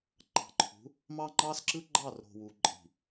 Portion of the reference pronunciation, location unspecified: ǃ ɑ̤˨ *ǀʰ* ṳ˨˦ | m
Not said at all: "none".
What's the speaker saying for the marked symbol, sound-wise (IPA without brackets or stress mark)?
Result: ǃʰ